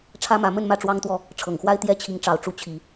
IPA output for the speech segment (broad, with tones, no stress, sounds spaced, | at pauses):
ʈ͡ʂʰ ä˥ m ä˧˥ m ə˥˧ n m ä˥˩ ʈ͡ʂ w ɑ˥ ŋ t̪ w ɔ˥˩ | ʈ͡ʂʰ ɤ˨˩ ŋ x w a˥ ɪ̯ t̪ j ɛ˥˩ t͡ɕʰ i˧˥ ŋ ʈ͡ʂ ɑ˨˩ ʊ̯ ʈ͡ʂ u˧˥ t͡ɕʰ i˨˩˦